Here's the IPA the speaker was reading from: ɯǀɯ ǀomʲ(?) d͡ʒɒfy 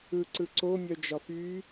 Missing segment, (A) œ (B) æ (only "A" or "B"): A